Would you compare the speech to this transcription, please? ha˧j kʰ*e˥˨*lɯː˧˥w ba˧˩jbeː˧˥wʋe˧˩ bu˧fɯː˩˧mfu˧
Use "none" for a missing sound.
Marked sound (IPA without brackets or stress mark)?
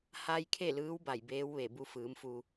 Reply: e˥˨